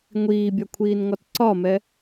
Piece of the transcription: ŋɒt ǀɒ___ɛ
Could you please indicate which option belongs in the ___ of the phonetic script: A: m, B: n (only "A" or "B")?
A